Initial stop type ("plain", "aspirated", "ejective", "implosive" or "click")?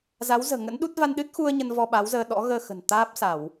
implosive